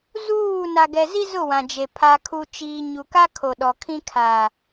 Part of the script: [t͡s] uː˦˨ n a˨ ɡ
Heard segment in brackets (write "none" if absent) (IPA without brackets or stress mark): z